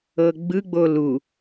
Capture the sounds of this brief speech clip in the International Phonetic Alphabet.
ɤ ɡ͡b ɯ ɡ͡b o l u

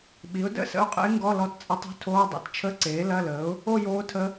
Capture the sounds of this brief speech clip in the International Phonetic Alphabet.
ɓ i˩˥ ʊ̯ d ə̰˥˧ s ə̰˧˥ ʊ̯ qʼ ə̰˧˥ ɪ̯ ŋ ɡ ɔ˧˥˧ l ɔ˧˥ t t͡sʼ ə˧˥ tˤ ṳ˧˥ tʰ oː˧˥˧ dˤ ḭ˩˥ t t͡ʃʰ ə˧˥˧ ǀ eː˩˥ l ɐ˧˥˧ l əː˩˥ ʊ̯ | o˥˧ j oː˧˥ tʰ ə˧˥

